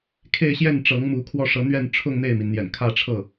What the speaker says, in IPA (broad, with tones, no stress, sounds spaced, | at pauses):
kʰ e˥˧ ɪ̯ ɕ j ɛ˥˩ n ʈ͡ʂ ɤ˧˥ ŋ m u˧˥ kʰ w ɔ˥˩ ʂ ɤ˧˥ n̪ ɥ ɛ˥˧ n ʈ͡ʂʰ ʊ˥˧ ŋ n̪ e˥˩ ɪ̯ m i˩ n n̪ j ɛ̰˨˩ n kʰ ä˥˧ ʈ͡ʂʰ ɤ˥˩